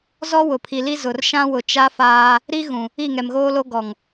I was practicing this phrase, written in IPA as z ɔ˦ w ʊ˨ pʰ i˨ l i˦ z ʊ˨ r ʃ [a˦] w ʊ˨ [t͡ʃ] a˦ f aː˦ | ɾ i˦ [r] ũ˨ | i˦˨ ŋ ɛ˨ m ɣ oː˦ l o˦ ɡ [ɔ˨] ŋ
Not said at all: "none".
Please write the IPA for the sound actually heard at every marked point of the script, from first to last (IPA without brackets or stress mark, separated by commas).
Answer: ã˦, t͡ʃ, ɣ, ɔ˨